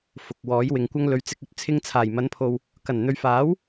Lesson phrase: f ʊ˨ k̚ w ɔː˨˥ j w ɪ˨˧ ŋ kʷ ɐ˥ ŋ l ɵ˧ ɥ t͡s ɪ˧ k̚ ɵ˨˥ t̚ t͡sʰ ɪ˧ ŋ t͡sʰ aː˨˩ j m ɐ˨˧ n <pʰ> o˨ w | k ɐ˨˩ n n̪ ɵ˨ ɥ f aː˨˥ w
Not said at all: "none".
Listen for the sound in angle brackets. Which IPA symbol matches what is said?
pʰ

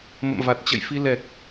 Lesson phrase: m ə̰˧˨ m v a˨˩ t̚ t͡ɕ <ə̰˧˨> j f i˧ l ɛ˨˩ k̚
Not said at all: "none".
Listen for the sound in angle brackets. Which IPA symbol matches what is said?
ə̰˧˨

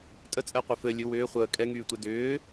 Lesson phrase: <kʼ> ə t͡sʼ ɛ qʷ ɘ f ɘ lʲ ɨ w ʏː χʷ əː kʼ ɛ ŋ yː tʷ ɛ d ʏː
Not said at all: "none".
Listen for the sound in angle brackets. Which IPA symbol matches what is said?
tʼ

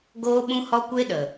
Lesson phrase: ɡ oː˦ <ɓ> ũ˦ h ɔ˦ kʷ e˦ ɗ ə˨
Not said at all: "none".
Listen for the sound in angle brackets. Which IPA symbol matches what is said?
ɓ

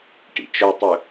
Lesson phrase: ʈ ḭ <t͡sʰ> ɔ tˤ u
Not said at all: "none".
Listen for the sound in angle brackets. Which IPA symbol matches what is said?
t͡ʃ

